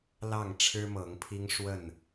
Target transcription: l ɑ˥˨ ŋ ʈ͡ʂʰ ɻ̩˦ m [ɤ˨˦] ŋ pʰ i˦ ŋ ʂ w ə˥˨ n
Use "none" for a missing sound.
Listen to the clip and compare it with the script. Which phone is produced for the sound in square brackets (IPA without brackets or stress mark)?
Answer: ɤ˨˦